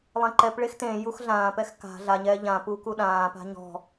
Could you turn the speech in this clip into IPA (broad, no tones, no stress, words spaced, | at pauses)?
lˠẽǃɛpɭex tẽ juxɮãːpɛx ka̤ ɮaɲɛː ʎãpu kuɗãːpa̤ ɲɔ̤